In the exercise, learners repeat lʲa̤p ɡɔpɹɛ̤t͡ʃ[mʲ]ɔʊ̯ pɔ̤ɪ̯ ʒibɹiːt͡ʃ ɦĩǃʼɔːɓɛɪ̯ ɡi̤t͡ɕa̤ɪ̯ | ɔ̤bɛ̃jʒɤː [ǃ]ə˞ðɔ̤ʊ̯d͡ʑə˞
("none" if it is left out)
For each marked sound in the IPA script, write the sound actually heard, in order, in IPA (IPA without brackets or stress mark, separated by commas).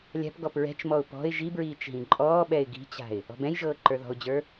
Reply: m, ǃ